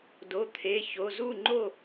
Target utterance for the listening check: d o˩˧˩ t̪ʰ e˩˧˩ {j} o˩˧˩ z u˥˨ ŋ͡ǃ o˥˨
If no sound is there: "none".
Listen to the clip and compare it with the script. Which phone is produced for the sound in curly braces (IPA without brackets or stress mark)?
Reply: ç